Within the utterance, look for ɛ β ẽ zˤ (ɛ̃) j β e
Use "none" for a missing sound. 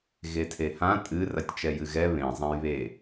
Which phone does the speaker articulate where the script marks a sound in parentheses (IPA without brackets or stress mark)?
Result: ɛ̃